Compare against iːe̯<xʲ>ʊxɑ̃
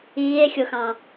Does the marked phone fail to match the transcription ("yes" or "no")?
no